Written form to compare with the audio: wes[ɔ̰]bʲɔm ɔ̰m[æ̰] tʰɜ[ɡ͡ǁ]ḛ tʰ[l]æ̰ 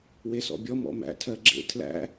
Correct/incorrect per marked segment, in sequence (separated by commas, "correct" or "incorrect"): correct, correct, correct, correct